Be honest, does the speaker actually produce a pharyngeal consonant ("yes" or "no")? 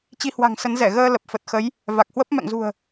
no